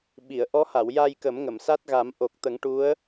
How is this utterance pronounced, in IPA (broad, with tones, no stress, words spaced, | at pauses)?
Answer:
ɓi˨˩˨ə̯ ʔɔ˧˥ha˨˩˨wja˧j kə˨˩˦mŋə˨˩˨msa˦˥t̚ ɣa˨˩˦mʔo˨˩k̚ t̪ə˨˩˦ŋʈu˧˥ə̯